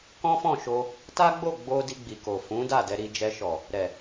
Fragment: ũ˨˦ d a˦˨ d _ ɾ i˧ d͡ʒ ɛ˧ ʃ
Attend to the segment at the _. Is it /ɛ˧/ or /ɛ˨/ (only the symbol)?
ɛ˧